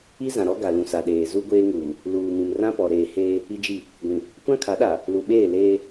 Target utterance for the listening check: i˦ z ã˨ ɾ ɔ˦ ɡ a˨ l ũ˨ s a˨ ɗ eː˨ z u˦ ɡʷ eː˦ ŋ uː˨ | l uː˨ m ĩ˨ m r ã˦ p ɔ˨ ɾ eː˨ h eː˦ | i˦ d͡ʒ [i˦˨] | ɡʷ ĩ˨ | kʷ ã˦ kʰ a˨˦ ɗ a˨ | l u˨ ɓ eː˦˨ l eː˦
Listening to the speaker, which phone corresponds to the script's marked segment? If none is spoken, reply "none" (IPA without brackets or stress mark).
i˦˨